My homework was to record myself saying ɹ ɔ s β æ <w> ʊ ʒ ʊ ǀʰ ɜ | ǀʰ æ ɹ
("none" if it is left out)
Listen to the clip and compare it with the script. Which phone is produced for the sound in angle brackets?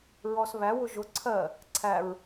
w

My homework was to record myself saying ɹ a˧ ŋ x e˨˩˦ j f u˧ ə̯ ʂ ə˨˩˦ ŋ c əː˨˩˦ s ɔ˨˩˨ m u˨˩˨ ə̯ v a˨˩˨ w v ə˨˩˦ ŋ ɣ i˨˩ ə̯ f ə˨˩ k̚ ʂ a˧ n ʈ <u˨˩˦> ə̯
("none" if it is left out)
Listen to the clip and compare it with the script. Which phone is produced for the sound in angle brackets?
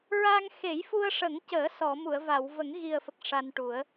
u˨˩˦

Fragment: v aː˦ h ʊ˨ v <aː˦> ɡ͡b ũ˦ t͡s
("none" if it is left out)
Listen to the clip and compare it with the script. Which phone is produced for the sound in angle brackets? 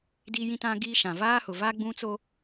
a˦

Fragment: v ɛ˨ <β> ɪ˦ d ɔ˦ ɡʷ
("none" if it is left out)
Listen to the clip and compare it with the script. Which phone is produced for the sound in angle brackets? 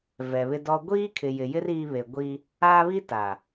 β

